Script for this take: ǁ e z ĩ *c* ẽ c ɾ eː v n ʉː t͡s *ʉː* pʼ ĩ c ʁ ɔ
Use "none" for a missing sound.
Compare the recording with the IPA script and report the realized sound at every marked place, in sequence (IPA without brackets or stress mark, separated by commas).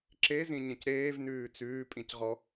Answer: ɲ, ʉː